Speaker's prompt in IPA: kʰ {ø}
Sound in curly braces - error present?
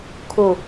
yes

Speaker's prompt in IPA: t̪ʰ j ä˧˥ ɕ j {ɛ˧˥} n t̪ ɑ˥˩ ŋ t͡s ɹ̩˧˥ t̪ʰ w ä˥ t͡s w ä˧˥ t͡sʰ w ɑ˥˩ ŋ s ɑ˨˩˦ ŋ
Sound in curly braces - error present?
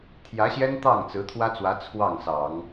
yes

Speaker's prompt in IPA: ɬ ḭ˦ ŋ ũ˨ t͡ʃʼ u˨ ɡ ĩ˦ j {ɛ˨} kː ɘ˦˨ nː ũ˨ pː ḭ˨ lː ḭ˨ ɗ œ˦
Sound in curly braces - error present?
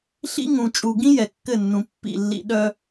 no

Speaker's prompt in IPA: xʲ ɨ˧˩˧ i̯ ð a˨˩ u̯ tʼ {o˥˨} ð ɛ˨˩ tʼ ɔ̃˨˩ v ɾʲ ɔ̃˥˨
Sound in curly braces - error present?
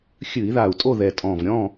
no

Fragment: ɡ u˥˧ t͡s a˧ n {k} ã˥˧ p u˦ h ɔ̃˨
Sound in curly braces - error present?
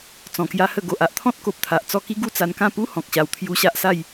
no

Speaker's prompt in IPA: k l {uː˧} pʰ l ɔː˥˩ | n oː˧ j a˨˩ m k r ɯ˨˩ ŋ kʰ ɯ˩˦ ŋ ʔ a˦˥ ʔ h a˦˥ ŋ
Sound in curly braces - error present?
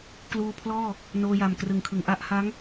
no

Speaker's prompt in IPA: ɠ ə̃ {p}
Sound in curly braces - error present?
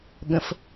yes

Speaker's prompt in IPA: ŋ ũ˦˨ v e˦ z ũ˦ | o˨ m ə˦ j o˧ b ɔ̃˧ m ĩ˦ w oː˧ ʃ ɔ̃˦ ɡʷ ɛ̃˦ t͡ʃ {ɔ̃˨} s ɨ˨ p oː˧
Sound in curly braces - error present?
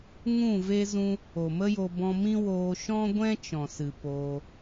no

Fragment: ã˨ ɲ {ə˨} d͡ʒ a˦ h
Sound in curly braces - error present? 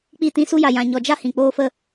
yes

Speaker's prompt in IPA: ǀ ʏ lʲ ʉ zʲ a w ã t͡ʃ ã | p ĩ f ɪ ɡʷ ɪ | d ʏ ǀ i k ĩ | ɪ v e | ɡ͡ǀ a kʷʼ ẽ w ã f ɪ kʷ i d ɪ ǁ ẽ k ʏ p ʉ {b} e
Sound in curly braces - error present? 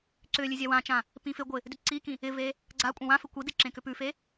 yes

